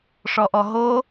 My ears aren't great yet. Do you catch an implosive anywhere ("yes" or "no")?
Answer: no